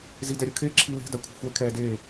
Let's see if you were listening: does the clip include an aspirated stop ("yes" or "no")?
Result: yes